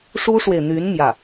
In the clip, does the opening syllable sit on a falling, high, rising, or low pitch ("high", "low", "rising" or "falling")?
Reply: high